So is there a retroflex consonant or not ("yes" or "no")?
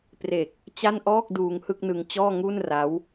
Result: no